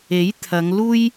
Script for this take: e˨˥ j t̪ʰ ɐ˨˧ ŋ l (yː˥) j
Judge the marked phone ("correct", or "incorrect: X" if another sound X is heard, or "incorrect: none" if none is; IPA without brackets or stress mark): incorrect: uː˥